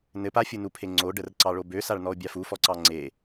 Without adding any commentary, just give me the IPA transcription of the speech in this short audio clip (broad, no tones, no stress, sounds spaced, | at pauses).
n ɘ p a fʲ u n u pʰ e ŋ͡ǀ o ɖ ə r ǀ ɑ ɭ o b ø s a ɭ n ɔ o̯ bʲ a f u f ɔ ǀ ɑ ŋ͡ǀ e